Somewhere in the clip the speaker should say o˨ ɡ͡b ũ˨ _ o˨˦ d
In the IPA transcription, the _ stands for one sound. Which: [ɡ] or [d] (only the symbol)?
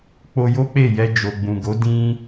ɡ